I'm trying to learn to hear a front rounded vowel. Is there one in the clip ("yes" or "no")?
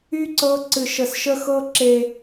yes